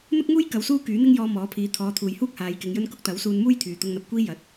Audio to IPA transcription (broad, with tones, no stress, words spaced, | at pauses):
n̪ʊ˥k̚ŋuː˥j kɐ˨˧wsuː˥ kyː˨˥n̪ɪ˥ŋjɔː˧ mɔː˨˥pʰiː˨˧ t̪ʰɔː˨˧t̪ʰuː˨jhuː˥k̚ haː˨˧jkɪ˨˧ŋjɵ˥n kʊ˥k̚t̪ɐ˨˥wsuː˧nmuː˥j t̪ʰyː˨˩t̪ʊ˧ŋn̪ɐ˨p̚kʷiː˥ jɐ˨˥t̚